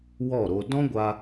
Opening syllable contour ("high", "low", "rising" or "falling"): falling